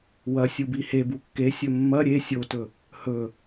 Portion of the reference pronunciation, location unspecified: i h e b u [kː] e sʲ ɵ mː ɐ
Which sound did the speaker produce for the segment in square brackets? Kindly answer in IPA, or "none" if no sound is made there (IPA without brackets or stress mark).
kː